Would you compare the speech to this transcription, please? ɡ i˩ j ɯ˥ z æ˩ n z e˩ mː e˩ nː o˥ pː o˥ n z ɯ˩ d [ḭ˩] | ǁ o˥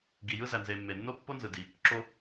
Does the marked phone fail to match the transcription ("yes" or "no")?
yes